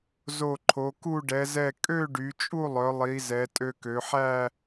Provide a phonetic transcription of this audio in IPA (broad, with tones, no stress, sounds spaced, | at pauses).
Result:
z o˧˩ ǃʰ o˩˧ k u˥˧ ɖ ɛ˩˧ z ɛ˧˩ kʼ ø˥˧ ɖ y˩˧ t͡ʃʼ u˥˧ lˠ œ˩˧ lˠ i˩˧ z ɛ˩˧ tʼ ø˧ k ø˩˧ ħ æ˥˧